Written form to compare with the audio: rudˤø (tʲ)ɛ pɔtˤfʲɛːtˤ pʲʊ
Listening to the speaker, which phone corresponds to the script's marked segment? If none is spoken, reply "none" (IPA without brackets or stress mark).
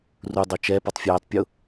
t͡ʃ